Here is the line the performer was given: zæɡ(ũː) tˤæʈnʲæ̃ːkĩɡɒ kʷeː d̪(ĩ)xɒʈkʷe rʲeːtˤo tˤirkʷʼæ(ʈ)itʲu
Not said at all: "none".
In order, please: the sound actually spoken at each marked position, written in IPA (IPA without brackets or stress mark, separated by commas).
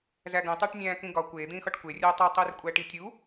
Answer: ũ, ĩː, ʈ